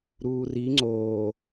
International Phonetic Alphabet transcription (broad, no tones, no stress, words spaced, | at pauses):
ɾuːri ŋ͡ǀoː